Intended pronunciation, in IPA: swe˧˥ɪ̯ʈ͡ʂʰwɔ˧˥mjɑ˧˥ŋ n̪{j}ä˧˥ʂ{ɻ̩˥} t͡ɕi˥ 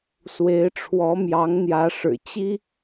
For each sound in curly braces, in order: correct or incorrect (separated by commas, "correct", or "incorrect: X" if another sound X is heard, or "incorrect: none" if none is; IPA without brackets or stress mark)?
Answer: correct, incorrect: ɻ̩˨˩